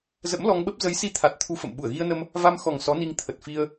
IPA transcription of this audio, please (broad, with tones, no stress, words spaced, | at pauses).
zə̰˧˥mlɔ˧ŋɓə˦˥p̚ zə˨˦jsi˧t̪ʰa˨˩t̚ t̪ʰu˧fə̰˧˨m ɓu˧˩ə̯ɣi˧ə̯nə˧m | va˧m xɔ˨˩ŋ sɔ˨˦ni˧ŋ t̪ʰə˨˩t̚fi˧ə̯